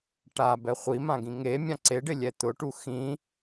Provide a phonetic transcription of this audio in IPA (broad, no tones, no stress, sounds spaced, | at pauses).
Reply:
ʈ a b ɛ χʷ i m ã ɡ ĩ ŋ e mʲ ã ǀ e ɖ ɪ lʲ ɛ t̪ ʊ ʈ u x ĩ